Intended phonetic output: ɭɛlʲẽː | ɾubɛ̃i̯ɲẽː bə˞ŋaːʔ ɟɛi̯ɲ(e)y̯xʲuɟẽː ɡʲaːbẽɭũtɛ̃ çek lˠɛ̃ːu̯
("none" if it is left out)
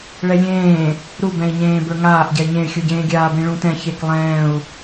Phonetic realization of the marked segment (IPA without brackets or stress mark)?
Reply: ẽ